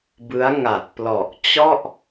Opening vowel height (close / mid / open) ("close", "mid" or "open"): close